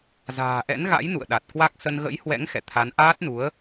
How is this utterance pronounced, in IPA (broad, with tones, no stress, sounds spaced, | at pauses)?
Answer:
z a̤ː˨˩ ʔ ɛ̰˧˥ n ɣ a̰˧˥ j n ṵ˧˨ ə̯ ɗ a˨˩ t̚ k w a˦˥ k̚ s ə˧ n ɣ ə̰˧˥ j h w ɛ̰˧˥ ŋ x ɛ̰˧˨ t̪ʰ a˨˦ n ʔ aː˦˥ t̚ n u˨˦ ə̯